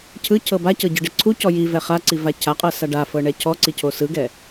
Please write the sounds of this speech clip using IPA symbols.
cʰɯcʰɤ bacɤɟɯɖe ǀʰucɔ jivɛ χaǀiva cʰaqʼɤsa ɖafɤɳɛ cʰɔǀicʰo sɯɡɛ

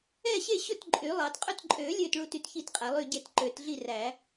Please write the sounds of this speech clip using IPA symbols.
ɛ˥˨ɕe˥˨ɕɵ˥˨t ǃʼy˨˩˦lˠɑ˨˩˦tqʼœ˥˨t ǃʼø˨˩˦ lʲø˥˨tɭu˥˨t y˥˨tçi˥˨tqʼæ˨˩˦ lˠy˥˨ɟe˥˨t ǃø˨˩˦tɮi˥˨ræ˨˩˦

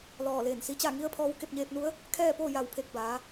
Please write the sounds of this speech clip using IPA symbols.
lɔː˧˩leː˧˩nsi˧t͡ɕa˥˨ ŋi˧˥ə̯ pʰɔː˧wke˥˨p̚ ɲeː˧p̚nu˧˥ə̯ | kʰɛː˥˨poː˥˨ ja˧˩wpʰe˧˩k̚ baː˩˧

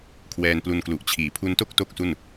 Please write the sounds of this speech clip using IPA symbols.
kʰwɛː˧nplu˧nklu˨˩ʔt͡ɕʰiː˨˩ pʰu˧nto˥˩k̚ to˥˩k̚su˥˩n

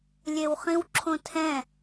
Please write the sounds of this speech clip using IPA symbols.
lʲewχĩwǁʰõtʰɛ̃

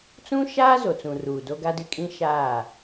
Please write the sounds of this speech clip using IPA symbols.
t͡sũ˦ʃaː˦ zo˨t͡sũ˨ ruː˨do˦ɡa˦dɪ˦ kʼĩ˦ʃaː˦˨

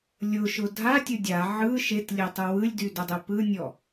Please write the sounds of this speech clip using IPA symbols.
lʲʊʃʊ dʱatʲʊ dʲa ʕɯ ʃetlʲetˤɯ wɯlʲdydɘdˤe pɯnʲɔ

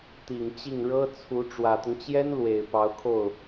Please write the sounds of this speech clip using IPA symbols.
t̪i˨˩ŋt͡ɕi˥˩ŋ ɻɤ˥ t͡sʰu˧˥ ʈ͡ʂwä˨˩t̪ʊ˦ŋt͡ɕjɛ˥n lwe˨˩ɪ̯pɑ˧˥ʊ̯kʰo˥˩ʊ̯

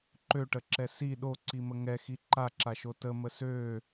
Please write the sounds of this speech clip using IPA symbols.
ǃøʈəǁɛ si ɗoǀimə ŋɛxi ǃaǁaʃo təmə sø

